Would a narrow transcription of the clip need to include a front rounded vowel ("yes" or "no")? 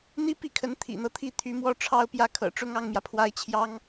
yes